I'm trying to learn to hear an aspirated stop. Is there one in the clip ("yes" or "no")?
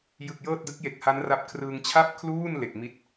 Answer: yes